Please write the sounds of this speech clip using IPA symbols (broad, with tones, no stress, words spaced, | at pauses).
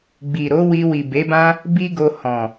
ɡ͡bi˨ɾo˨˦wi˧ wi˨be˨˦bã˦ | bi˦ɡo˧ hɔ̃˨